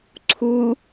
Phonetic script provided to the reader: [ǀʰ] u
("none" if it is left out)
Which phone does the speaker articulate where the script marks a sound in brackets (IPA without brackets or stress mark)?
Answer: ǀʰ